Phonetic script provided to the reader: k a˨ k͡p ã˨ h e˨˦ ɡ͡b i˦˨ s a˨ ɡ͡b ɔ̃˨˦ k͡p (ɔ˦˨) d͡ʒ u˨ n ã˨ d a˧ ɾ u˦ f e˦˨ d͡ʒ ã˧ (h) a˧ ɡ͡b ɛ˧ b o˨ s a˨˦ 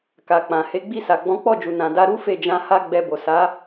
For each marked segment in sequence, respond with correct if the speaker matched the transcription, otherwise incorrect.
correct, correct

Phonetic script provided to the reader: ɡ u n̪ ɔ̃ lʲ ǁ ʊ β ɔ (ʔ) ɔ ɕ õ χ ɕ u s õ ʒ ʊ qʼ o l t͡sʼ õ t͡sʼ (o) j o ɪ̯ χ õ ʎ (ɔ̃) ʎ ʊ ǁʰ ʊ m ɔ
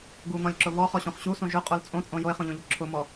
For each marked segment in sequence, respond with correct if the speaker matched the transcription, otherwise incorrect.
incorrect, incorrect, incorrect

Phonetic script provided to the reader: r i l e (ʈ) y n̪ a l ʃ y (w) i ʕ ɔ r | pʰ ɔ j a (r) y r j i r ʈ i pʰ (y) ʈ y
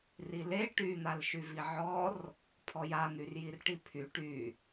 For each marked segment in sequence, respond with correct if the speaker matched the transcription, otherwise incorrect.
correct, incorrect, incorrect, correct

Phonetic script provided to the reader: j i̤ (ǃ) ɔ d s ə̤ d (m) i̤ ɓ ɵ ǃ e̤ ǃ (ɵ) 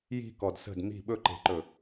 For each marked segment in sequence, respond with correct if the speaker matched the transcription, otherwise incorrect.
incorrect, correct, correct

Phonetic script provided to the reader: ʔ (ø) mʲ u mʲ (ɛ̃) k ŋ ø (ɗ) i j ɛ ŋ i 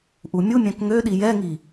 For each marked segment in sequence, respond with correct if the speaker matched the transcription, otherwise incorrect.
incorrect, correct, correct

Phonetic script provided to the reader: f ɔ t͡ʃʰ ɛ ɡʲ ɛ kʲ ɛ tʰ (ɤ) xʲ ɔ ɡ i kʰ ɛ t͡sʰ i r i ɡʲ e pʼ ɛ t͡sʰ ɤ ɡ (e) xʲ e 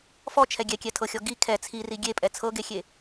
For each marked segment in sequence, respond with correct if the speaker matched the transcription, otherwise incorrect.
correct, correct

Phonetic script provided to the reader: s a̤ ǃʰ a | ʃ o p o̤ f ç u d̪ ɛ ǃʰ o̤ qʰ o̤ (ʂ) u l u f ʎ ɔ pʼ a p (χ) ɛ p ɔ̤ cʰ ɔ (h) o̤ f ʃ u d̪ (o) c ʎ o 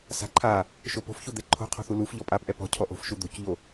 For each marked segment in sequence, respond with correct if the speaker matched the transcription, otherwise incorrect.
incorrect, incorrect, incorrect, incorrect

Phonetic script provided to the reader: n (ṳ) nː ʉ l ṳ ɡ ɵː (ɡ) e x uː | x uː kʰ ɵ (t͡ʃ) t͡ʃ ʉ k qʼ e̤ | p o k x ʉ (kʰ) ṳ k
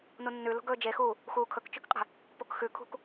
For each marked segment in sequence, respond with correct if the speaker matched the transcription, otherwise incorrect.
incorrect, incorrect, incorrect, correct

